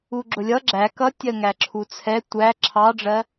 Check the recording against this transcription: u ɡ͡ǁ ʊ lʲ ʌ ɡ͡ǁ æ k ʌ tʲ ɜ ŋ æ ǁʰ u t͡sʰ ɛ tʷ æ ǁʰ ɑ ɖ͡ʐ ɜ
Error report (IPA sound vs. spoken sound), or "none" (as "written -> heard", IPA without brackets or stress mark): none